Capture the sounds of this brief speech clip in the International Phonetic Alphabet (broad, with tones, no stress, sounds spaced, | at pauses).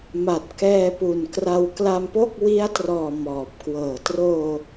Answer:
m a˨˩ t̚ k ɛː˧ p u˨˩ n k r a˧ w k l a˧ m p o˥˩ k̚ w i˦˥ a̯ t r ɔː˨˩ m ɔː˨˩ p̚ k w ɤː˨˩ t r oː˧